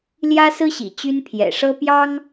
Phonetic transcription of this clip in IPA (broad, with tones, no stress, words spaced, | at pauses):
ljä˥sɹ̩˥ɕḭ˨˩ t͡ɕy˥npʰjɛ̰˨˩ ʂɤ˥pjɑ˥ŋ